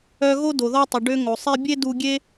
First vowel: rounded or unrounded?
rounded